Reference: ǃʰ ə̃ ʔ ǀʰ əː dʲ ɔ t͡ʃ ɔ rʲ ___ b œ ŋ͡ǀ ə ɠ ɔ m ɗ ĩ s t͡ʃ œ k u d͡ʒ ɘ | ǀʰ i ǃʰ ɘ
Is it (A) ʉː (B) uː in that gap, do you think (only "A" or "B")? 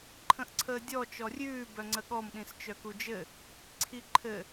A